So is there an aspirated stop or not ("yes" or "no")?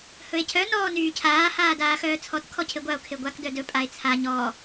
yes